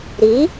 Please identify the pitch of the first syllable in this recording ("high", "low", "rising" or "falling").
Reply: rising